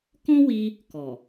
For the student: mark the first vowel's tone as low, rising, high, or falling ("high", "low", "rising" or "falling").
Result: high